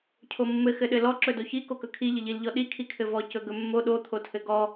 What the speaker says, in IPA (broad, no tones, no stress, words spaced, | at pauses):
cʰomːɘ xɘɗɘlɔ ǁɵdoçi kokɵkʰi ʎɘʎil ʎɔɗi kʰikʰɘvɔ cɵɡɵmːo ɗo t̪ʰotʰɘɡɔ